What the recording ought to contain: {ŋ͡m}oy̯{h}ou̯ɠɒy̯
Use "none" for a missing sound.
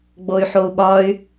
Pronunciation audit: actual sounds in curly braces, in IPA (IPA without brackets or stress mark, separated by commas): ɡ͡b, ħ